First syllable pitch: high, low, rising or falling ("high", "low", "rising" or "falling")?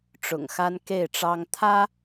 low